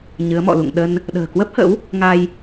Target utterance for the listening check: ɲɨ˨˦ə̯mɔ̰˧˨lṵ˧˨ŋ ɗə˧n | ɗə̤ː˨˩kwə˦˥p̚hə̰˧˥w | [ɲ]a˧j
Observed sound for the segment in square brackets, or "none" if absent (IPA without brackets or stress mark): ŋ